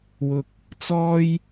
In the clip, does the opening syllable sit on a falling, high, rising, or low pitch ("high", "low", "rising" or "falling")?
low